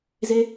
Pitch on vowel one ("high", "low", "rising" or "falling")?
high